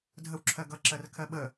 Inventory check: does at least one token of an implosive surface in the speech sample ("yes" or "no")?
yes